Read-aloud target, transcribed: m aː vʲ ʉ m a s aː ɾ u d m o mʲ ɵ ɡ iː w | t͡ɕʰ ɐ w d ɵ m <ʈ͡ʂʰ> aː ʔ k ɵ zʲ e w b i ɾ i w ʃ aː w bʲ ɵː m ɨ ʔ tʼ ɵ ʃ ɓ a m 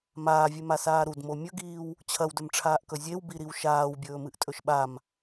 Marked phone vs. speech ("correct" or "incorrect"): correct